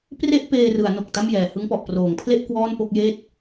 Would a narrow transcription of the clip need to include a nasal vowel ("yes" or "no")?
no